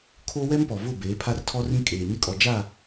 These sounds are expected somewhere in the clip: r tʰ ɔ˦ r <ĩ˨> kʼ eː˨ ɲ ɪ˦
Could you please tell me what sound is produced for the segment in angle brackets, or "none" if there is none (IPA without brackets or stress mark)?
ĩ˦